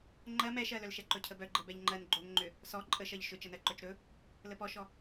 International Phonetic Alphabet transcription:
ŋ͡ǃɜ mɛʃɜlœlʃɛ ǃɵcʰəbœ ɡ͡ǃəbɛʎŋ͡ǃɜn ɡ͡ǃoŋŋ͡ǃʏ | sɔ ǃʼəʃɜʎ ʃʏ t͡ʃənɜǃœt͡ʃɾɵ | ləpɔʃɔ

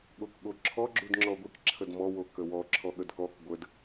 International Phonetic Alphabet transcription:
ɠokɠoǁʰɔ ɡ͡ǁudŋ͡ǁɔɡʷik ǁʰədmɔ wokəwɔ ǁʰɔɠədkɔk ɡʷəd

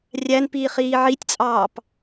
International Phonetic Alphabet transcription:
rʲænpiːχiː ʕitʲt͡sʼɑːp

